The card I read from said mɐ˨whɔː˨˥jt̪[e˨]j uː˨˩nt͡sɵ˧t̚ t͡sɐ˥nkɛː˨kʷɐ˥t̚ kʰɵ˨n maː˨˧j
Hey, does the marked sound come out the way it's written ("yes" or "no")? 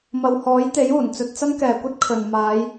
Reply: no